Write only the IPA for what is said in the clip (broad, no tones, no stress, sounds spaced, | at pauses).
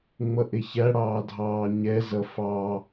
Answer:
ŋ͡m ʌ ʔ ɪ ç æ ɽ ɑː dʱ ɑː ɲ ɛ z ʌ f ɑ